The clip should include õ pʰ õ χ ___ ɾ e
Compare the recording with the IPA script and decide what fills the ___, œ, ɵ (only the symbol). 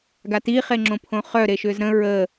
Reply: œ